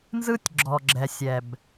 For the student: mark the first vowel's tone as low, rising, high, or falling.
high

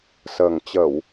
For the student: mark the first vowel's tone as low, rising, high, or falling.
low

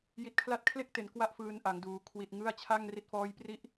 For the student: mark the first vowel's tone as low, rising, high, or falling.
low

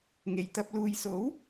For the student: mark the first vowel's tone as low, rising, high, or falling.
low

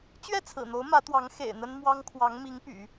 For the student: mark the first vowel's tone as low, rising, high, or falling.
falling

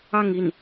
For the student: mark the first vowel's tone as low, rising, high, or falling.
falling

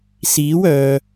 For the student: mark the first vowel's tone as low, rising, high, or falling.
rising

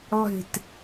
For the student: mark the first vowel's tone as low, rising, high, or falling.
falling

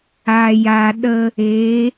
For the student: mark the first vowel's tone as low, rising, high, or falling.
low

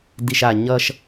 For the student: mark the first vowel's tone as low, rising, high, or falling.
low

